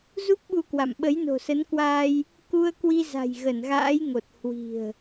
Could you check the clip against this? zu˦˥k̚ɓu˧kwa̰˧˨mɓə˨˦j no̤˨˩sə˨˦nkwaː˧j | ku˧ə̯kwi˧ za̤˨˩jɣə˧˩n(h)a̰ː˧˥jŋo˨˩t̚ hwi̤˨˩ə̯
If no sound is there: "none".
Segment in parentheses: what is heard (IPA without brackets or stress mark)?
ɣ